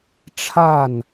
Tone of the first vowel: falling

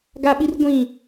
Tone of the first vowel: high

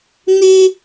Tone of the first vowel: high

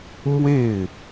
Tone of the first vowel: falling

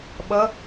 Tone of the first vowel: rising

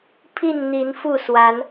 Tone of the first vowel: falling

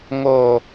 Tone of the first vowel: low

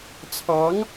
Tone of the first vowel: rising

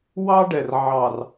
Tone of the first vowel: high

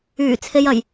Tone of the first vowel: low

